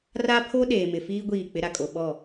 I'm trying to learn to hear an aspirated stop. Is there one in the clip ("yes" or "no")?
yes